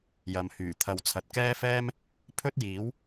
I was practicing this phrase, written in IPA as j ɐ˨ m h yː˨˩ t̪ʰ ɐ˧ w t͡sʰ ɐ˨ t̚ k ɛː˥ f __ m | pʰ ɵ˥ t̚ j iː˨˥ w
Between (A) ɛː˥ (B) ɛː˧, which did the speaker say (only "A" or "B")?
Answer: A